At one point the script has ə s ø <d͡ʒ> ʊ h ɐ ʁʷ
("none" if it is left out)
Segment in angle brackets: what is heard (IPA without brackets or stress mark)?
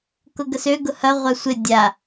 ɡ